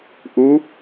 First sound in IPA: ʔ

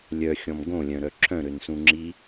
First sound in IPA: lʲ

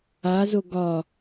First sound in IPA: a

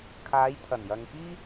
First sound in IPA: kʰ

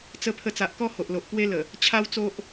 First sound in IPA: t͡s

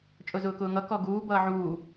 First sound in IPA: t͡ʃʼ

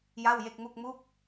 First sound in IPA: j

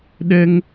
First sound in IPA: ɗ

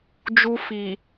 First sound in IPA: d͡ʒ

